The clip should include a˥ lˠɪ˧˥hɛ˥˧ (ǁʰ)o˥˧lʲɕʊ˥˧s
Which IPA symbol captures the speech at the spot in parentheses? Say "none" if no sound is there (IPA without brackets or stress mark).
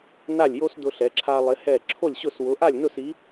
ǁʰ